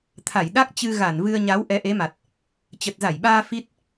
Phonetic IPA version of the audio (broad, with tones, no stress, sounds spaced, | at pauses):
t̪ʰ a˧˩ j ɗ a˦˥ k̚ t͡ɕ ɨ˧ ɣ a˧˩ n v ɨ˧ ə̯ ɲ a˨˦ w ʔ ɛ˨˦ ʔ e˨˦ m a˨˩ t̚ | t͡ɕ ə˨˩ t̚ z a˧˩ j ɓ aː˧ f i˦˥ t̚